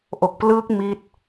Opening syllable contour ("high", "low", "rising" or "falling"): low